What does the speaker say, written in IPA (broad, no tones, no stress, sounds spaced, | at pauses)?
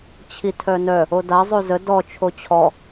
t͡ɕʰ i tʰ œ n œ | o d a zˤ ʉ z ə d ɔ t͡ʃʰ o t͡ɕʰ ɔ